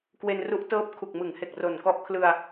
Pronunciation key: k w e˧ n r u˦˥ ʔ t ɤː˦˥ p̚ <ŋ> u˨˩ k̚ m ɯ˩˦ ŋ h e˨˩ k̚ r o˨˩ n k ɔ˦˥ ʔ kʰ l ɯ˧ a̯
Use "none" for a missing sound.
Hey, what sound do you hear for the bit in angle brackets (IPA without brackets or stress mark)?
kʰ